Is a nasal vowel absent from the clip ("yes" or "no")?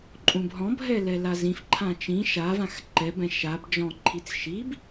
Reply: no